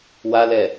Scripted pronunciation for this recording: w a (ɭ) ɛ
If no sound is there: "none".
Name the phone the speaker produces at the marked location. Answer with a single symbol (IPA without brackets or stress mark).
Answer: l